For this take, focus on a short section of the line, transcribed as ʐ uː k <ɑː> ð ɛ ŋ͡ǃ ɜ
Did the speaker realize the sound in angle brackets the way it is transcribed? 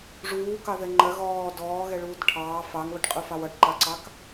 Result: no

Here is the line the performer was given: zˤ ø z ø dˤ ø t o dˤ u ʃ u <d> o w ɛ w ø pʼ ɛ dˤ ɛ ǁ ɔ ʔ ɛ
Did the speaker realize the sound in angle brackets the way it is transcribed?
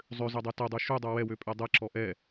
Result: no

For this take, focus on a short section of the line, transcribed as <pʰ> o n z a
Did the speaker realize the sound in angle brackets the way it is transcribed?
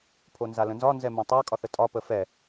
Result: yes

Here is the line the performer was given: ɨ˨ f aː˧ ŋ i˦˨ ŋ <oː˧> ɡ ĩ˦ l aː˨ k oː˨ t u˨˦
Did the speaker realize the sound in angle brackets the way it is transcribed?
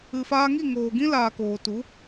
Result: no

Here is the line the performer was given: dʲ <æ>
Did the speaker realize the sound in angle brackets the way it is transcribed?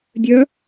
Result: no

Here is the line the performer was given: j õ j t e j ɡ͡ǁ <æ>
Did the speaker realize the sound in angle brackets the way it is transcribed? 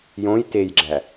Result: yes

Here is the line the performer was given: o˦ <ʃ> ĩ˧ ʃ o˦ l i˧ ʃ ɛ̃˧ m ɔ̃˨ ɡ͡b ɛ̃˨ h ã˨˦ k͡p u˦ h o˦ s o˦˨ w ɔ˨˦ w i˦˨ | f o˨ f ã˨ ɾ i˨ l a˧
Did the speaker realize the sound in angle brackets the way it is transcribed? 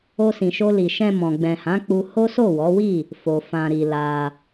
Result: no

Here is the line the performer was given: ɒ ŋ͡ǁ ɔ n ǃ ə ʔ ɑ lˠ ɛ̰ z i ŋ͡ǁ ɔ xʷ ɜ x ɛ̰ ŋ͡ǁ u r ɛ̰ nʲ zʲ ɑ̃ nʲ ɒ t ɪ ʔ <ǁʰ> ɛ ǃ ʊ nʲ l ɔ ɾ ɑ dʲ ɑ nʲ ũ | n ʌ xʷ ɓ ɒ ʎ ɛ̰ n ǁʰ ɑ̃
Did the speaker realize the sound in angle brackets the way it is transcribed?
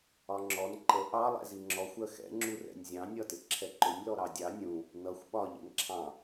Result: yes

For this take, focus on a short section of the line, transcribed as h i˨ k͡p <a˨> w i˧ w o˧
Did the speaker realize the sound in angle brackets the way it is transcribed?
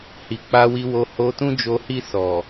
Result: no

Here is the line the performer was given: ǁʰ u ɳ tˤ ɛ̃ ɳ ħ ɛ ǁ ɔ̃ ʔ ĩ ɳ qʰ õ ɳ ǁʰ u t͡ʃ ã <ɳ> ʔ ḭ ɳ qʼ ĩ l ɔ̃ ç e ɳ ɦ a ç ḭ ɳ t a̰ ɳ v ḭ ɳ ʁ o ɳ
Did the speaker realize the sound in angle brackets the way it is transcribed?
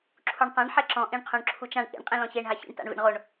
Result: yes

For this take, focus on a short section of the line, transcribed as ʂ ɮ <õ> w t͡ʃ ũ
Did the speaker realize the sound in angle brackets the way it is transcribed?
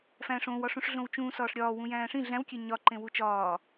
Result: yes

